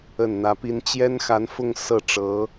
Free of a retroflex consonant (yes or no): no